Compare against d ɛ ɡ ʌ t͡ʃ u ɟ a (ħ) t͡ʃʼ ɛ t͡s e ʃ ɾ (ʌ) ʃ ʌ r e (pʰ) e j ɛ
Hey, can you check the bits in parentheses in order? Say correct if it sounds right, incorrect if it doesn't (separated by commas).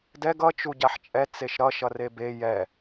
correct, correct, incorrect